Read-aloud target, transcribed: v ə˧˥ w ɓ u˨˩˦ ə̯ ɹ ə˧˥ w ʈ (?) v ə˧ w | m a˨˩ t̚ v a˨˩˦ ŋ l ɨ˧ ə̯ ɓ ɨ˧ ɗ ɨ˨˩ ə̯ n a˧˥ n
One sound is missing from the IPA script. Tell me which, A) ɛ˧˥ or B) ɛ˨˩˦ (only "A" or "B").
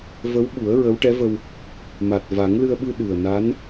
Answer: A